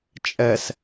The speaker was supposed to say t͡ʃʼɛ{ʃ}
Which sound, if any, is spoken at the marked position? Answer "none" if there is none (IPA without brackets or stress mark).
s